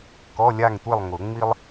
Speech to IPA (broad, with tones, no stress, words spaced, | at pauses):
kɔ˧˥˧lʲa˥˨ŋtʷe˥˨lˠŋʊ˨˩˦ ŋ͡mi˥lˠ